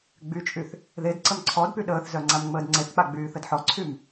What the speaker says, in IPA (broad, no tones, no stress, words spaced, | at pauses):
ɡ͡byt͡ʃʼyθ | ðed ǀəmǀʰɔdpy ɗəːθzœ ŋ͡ǀamŋ͡məːdŋ͡ǀeθk͡pa ɡ͡byːθədħɔǀʰym